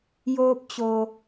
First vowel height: mid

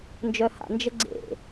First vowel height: mid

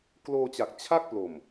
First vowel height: mid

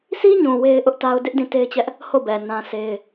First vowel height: high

